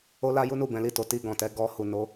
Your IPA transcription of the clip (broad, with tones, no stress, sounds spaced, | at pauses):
o˦ l a˦ j u˦ n u˦˨ b ɛ̃˨˦ l i˦˨ t o˨˦ t i˧ ɡ ɔ̃˨ t ɛ˧ ɡ ɔ˧ h u˨ n o˨˦